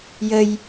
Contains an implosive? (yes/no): no